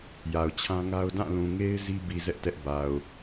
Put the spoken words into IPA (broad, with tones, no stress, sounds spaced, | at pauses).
j a˨ ʊ̯ t͡ɕʰ ã˦ ŋ a˦ ʊ̯ d ã˦˨ l ũ˨ ŋ e˦ ɪ̯ z i˦ b i˨ z ɛ˦ ʔ t ɛ˦ ʔ b a˨ ʊ̯